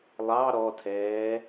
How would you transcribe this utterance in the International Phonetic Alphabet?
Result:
lˠ ɑ ɾ ɔ tʰ ɛː

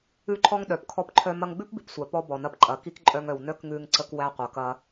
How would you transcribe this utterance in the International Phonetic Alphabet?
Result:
ʉ˦ ǃʰ ɔ˦ ŋ ɗ œ˨ p kʰ ɔ˧ p ǃʰ œ˧ m ɐ˧ ŋ ɡ͡b ʉ˦ p b i˨ p sʷ æ˨ p ɔ˧ b ɔ˨ n ɐ˧ p ǃʼ ɐ˨˦ k i˦ k ǃʼ œ˧ ŋ œ˨ w n œ˦ k ŋ ʉ˧ ŋ ǀ ə˧ k w æ˧ qʷ ɐ˨ k ɐ˧

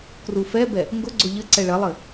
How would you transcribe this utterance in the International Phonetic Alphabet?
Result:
k r u f ɛ b ɛ | ŋ ɡ ʊ ɡ͡ǀ ʊ ʎ ɘ ǀ ɛ ɭ ɐ lˠ ɘ

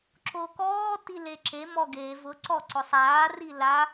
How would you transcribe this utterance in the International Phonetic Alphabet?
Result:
ǁ o k ɔː t i l e ǁ e m ɔ ɡ e v ʊ ǀ ɔ ǀ ʊ sˤ aː r i l a

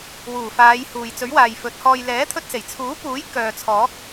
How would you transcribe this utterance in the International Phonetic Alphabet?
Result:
w uː˨˩ f aː˨˧ j h uː˨ j t͡s ɵ˨˥ ɥ w aː˨ j f ɵ˨˥ t̚ h ɔː˧ j l ɛː˨˥ t̪ʰ ɵ˧ t̚ s e˨˩ j t͡sʰ uː˨˥ p uː˨˥ j k œː˨ t͡sʰ ɔː˨˥ k̚

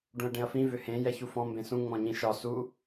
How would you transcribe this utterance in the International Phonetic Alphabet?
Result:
ɖ ũ ɐ̯ ɖ ẽ ɐ̯ f ĩ v ʏ h ẽ j ɛ ç u f ɔ̃ m b ẽ s ũ ŋ͡m ɔ̃ ɲ ĩ ʃ ɒ s u

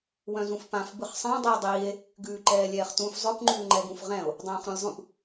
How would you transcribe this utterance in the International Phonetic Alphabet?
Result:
w œ̃ z ũ f p ã f b ɯ χ sˤ ẽ dˤ iː dˤ iː e̯ | ɡ ʉː ǃ ɛː lʲ ɛː χ t ũ f zˤ œ p ŋ͡ǃ ʉː ŋ͡ǃ ɛ ɡ ũ f ʁ ɛ̃ o̯ | dˤ œ̃ː χ ɾ ũ lʲ zˤ ũ p

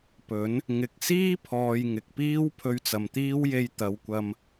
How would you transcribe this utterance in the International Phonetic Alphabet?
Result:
p ɵ˨˥ n | ŋ ɪ˨ k̚ s iː˥ pʰ ɔː˨ j ŋ ɪ˨ k̚ p iː˥ w pʰ ɵ˧ ɥ t͡s ɐ˨ m t̪ iː˥ w j e˧ j t̪ ɐ˨˧ w kʷ ɐ˧ m

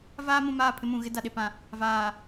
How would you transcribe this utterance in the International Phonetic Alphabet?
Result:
v aː˦ m ũ˨ m aː˦˨ pʰ ɪ˦ m ũ˨ ɣ ɪ˦ d a˨ ɗ e˨ p ã˨ | v aː˨

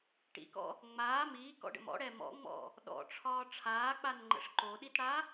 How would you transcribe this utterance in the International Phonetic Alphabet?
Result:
ʈ ḭ k ɔ̰ | ŋ͡m aː m iː k ɔ̰ ɖ ə̰ m ɔ̰ ɽ ɛ m ɔ̰ ŋ͡m ɔ̰ | ɗ ɔ̰ ʈ͡ʂʰ ɒː ʈ͡ʂʰ aː k͡p a n ŋ͡ǃ ə̰ ʂ ǃ o ɗ i t ɽ a

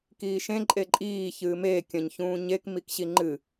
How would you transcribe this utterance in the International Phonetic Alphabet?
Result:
k iː ʃ ẽ ǃʼ e ǃʼ iː ç ɨː m e kʲ ɐ̃ ɲ ç ũː ɲ e k m i k ɕ i ŋ͡ǃ ɨ

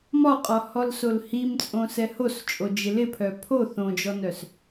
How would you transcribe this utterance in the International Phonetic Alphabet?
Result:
m ɒ qʼ ɒ h ɔ l s o l h i m t͡sʼ õ s ɛ h o s t͡ʃʼ o d͡ʒ ɪ l ɪ pʰ œ pʰ o θ õ d͡ʒ ɔ n œ s

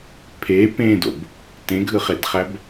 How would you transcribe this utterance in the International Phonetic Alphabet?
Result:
pʰ e p ẽ d o̰ b | t ẽ ɡʱ ɯ χ e d χ æ b

